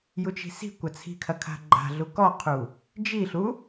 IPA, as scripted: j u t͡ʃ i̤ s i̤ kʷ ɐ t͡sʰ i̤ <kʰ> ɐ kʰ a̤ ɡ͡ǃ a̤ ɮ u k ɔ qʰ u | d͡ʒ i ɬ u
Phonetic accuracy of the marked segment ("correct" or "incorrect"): correct